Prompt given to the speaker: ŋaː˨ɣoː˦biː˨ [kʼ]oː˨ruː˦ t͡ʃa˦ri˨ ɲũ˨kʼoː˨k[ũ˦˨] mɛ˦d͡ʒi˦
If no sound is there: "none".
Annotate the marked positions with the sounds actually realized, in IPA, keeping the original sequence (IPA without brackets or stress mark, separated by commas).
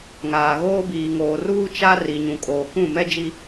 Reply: ŋ, ũ˦˨